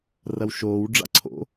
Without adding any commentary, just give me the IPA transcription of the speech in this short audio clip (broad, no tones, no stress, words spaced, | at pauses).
rɐwʃoːw ɖ͡ʐa̰ǀʰo̰